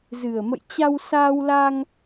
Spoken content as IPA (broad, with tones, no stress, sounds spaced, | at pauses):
z ɨ˨˩ ə̯ m ə̰˧˨ j t͡ɕ a˧ w s aː˧ w l aː˧ ŋ